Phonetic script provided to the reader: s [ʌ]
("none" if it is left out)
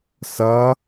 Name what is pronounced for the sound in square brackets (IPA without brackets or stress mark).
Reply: ʌ